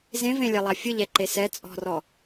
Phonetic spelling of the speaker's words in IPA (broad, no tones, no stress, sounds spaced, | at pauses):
z ẽ v ẽ lʲ ɛ lˠ a fʲ ɯ ʎ ɛ ǃ e s ɛ t͡sʼ ɔ̤ r ɔ